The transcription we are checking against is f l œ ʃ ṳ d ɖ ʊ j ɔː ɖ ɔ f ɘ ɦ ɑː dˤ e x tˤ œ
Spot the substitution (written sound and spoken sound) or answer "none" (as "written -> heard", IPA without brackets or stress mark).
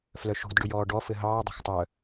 e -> e̤